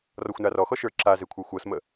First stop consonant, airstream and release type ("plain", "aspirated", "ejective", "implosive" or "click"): click